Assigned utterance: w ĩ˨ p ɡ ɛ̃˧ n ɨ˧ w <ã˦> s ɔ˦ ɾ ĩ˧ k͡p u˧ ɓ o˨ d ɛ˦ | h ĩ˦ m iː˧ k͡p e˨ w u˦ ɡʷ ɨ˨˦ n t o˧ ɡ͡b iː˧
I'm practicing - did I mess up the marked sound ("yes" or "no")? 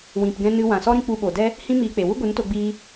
yes